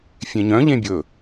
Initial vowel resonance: nasal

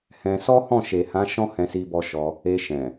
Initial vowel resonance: nasal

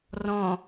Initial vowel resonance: nasal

